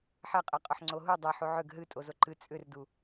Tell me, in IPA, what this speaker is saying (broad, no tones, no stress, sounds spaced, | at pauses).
ħ ɛ qʼ ɛ qʼ ʊ ħ ŋ͡ǀ o ɦ u dˤ ɛ ħ u ʕ ʏ ɡ ɦ ɨ tʼ o z o ǃ ɨ t͡sʼ ʏ r d u